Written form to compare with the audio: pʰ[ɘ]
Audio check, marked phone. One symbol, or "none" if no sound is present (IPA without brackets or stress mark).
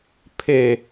e